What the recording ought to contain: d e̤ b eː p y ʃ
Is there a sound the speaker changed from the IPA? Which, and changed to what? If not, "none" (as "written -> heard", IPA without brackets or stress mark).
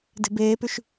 none